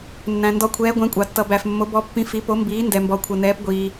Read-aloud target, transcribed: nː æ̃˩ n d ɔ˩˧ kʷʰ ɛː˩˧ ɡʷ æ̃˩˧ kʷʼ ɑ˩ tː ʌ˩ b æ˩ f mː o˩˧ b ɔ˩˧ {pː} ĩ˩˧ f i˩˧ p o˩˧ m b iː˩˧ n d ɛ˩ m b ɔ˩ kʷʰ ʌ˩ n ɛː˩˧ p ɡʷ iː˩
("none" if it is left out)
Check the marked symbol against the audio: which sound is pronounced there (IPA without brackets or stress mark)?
pː